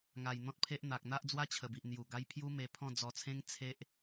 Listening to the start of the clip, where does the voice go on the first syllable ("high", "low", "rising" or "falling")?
low